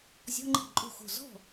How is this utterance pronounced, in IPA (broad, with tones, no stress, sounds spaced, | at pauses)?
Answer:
zʲ ɔ̤˧˥˧ ŋ͡ǃ i̤˥˩ ǃʼ o̤˥˩ x o̤˥˩ z ɔ̤˥˩